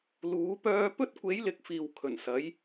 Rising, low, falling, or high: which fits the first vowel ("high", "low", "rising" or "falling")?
rising